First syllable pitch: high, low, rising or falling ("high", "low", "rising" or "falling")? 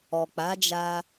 low